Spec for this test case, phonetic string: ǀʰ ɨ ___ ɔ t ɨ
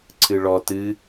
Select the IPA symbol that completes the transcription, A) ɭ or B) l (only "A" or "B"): A